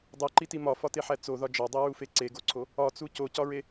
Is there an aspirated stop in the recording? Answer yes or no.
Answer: yes